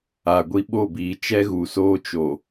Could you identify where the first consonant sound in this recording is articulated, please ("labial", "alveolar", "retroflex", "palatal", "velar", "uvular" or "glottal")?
velar